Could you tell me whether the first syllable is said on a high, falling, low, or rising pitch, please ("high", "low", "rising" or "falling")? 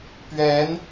rising